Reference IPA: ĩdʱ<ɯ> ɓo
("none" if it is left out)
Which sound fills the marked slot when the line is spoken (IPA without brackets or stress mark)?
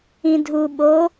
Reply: u